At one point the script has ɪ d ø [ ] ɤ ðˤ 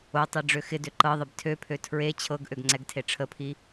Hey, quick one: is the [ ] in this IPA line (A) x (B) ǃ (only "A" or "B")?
B